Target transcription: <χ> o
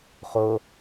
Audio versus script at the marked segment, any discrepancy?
no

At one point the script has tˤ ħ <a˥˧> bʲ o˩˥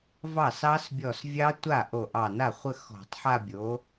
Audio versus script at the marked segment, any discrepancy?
no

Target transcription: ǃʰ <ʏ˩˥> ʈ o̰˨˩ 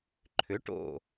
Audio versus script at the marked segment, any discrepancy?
no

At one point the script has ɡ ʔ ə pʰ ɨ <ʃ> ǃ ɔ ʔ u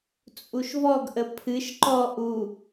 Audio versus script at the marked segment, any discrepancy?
no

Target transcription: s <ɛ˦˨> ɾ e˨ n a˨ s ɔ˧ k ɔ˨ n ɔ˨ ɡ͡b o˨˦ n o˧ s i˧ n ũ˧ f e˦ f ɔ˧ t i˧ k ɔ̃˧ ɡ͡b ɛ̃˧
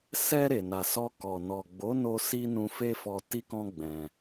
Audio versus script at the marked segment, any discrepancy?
yes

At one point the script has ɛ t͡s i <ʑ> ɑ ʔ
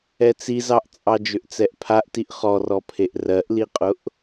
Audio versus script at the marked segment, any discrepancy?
yes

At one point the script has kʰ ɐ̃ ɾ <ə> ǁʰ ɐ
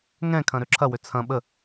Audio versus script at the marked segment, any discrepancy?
yes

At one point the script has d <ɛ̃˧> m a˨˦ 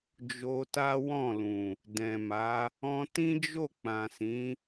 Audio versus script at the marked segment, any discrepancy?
yes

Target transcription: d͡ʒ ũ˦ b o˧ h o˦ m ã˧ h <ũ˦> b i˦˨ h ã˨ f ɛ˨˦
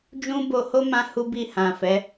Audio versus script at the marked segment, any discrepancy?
yes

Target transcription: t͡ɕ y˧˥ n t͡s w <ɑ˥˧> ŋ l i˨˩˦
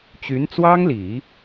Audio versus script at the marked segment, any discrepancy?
yes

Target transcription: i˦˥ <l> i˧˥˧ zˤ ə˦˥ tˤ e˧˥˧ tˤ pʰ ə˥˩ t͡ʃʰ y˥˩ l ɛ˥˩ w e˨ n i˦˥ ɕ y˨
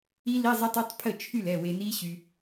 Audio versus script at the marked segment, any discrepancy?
no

